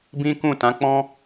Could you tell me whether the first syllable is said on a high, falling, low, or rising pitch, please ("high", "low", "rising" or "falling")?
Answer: high